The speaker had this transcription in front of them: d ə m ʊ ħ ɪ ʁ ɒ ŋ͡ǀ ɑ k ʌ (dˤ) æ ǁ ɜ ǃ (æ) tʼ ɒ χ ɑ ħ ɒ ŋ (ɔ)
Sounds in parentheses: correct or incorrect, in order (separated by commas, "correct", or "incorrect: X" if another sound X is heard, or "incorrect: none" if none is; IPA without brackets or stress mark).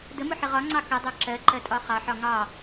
correct, incorrect: ɜ, incorrect: ɑ